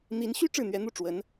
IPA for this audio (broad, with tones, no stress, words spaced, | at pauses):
n̪i˧˥nɕy˥ ʈ͡ʂɻ̩˥˩n̪ɥɛ˧˥ n̪u˥˩ ʈ͡ʂwə˧˥n